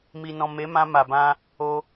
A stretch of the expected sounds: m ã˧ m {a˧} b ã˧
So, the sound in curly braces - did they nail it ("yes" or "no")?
no